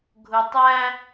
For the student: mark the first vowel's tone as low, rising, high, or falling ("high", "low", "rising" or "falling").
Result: low